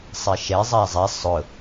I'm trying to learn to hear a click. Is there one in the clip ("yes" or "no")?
no